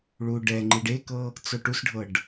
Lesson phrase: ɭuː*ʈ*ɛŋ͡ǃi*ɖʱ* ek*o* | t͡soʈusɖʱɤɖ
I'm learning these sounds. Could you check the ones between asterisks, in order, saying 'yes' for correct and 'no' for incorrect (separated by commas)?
no, no, no